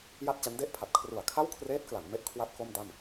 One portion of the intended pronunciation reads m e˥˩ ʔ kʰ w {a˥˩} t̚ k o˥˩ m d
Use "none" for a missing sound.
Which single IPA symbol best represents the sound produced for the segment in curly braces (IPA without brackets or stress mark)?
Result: a˥˩